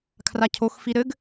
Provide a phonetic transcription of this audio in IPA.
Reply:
kʰ r a cʰ o x f i ɾ ɘ ɡ

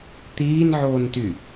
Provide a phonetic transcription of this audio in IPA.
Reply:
t̪ iː n ʕ oː n t y

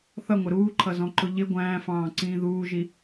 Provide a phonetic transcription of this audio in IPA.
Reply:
θ ʌ ŋʷ ɪ ɾ uː ǃʰ ʌ z ɔ̃ ǃ ʊ ʎ ɪ ɡʷ æ̃ː f ɑ̃ː ǀ ĩː ð uː ʒ i

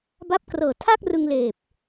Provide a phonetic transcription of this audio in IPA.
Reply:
b a˦˥ p̚ k r ɤː˨˩ tʰ a˥˩ k̚ r ɯ˧ ŋ l eː˨˩ p̚

